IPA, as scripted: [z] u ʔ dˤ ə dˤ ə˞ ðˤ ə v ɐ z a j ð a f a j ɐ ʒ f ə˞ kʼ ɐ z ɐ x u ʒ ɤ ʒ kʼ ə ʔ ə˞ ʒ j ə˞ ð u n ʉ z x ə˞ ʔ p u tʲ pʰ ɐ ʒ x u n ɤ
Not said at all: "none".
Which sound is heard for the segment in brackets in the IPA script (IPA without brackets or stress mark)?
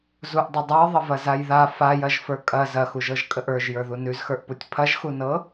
z